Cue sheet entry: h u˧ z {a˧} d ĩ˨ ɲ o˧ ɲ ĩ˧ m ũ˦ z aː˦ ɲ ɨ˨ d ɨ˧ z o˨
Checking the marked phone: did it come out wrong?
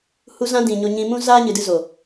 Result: yes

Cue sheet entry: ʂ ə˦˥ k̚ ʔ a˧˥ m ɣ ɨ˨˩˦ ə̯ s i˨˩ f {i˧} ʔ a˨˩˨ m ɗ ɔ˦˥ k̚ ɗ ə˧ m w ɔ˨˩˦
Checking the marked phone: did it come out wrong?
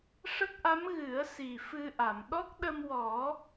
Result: yes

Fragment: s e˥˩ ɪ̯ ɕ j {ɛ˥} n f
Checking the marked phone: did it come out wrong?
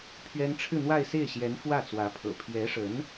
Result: yes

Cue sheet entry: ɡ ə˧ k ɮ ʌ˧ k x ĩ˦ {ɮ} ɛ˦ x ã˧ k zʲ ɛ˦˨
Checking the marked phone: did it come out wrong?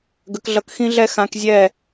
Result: no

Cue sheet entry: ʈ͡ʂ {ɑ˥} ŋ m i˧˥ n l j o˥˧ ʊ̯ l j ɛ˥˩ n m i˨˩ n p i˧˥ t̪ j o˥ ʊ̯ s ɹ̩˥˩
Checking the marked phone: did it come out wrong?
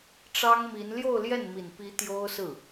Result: no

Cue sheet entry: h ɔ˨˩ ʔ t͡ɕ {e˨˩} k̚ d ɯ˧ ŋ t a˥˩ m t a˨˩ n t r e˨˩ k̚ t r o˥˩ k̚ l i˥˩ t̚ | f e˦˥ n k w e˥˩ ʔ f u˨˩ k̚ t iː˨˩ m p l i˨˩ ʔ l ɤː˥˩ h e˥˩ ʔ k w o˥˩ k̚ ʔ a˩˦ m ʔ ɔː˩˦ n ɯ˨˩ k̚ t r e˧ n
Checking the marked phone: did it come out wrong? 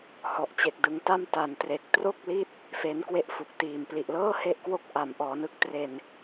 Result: no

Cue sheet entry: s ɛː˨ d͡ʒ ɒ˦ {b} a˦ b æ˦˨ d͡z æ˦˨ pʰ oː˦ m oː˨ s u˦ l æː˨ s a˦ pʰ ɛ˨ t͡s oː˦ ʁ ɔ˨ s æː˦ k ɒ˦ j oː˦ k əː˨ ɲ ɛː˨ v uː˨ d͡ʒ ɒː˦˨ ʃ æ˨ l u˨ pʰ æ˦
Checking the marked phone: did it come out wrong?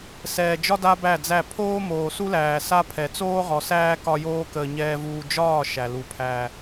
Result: yes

